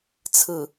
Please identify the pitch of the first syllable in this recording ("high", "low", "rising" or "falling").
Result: low